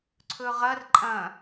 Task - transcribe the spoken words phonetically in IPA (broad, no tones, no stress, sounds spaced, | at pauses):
ǀʰ ɵ ʁ ɐ r ǃʼ ɐ̃